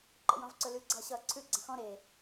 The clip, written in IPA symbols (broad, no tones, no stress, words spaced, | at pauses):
ǃə̰jɔ̃vǀɵlʉ ɡ͡ǀʌːɕʌːǀʰʉ ɡ͡ǀə̃xɔ̃ ɾe